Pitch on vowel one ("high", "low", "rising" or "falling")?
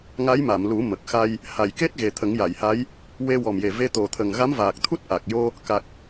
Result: rising